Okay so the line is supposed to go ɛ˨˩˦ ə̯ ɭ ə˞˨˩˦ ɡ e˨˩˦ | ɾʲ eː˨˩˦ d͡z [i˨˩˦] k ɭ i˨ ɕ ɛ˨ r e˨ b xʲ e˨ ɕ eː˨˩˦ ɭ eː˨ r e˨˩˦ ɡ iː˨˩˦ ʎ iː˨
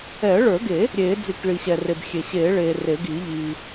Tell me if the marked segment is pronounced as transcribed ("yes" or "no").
yes